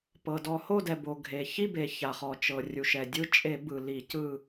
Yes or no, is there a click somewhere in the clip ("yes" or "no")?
no